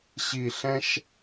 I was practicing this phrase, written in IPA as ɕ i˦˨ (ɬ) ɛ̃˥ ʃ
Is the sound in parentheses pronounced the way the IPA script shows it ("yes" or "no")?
yes